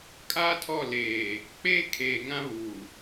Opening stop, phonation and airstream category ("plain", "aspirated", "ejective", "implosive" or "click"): ejective